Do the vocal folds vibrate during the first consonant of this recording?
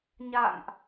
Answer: yes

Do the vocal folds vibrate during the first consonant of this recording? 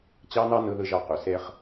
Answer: no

